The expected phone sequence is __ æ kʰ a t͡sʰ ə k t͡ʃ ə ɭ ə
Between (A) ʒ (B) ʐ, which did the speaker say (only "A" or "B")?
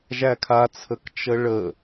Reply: A